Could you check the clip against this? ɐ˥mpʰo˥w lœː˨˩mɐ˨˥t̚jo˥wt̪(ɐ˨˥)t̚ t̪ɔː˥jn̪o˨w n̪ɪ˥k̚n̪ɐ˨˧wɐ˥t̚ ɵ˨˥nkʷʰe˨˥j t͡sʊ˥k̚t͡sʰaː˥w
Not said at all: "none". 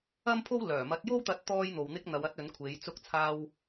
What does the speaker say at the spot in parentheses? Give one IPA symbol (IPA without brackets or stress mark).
ɐ˧